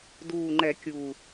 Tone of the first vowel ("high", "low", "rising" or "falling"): low